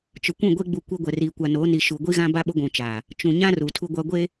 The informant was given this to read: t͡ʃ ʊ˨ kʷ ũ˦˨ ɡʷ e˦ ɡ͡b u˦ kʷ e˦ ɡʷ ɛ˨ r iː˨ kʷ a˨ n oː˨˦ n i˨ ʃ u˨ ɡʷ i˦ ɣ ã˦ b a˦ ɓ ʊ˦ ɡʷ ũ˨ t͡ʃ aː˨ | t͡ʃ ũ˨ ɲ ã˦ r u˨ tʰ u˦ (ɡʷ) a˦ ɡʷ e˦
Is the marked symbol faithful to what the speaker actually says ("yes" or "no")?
yes